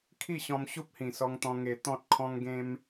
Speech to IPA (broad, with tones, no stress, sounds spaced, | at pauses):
kʰ i˥˧ ɕ ɔ̃˧ m ɕ u˦ p̚ h ĩ˨˩ s ɔ˧ ŋ t̪ ɔ̃˧ ŋ e˧ t̪ ɔ̃˦ t̚ kʰ ɔ̃˦ ŋ ɡ ẽ˦ m